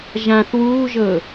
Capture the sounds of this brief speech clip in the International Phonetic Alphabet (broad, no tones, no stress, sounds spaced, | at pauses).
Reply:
ʒ ã θ w uː ʒ ɤ